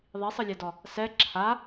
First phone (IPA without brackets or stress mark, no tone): ðˤ